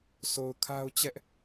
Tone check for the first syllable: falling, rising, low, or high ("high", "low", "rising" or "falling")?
low